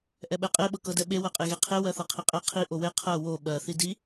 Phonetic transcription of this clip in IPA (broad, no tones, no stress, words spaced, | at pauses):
ʔɛɓɛqʼe ɓɤkɤdɛɓe wɜqʼeɣeqʰe wɜθɤqʰiqʼɛ qʰi ʔowe qʰɜ wo ɓɜ θidi